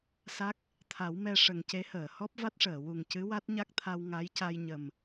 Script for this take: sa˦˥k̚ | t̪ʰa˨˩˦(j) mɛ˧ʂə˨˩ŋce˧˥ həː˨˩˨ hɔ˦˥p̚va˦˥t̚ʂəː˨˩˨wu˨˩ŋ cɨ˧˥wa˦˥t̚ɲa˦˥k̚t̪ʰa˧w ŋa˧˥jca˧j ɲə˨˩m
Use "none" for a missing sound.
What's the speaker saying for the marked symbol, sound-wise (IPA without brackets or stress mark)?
w